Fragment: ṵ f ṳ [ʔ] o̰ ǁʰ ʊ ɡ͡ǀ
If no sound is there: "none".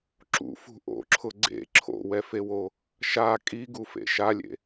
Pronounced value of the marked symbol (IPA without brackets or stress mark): ʔ